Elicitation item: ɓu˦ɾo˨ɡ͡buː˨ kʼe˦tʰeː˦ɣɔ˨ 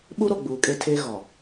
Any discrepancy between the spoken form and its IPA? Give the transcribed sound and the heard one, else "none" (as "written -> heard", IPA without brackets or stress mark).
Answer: none